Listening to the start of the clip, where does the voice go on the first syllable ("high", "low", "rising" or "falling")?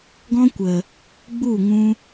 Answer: high